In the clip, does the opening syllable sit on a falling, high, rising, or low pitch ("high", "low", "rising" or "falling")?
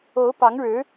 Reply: rising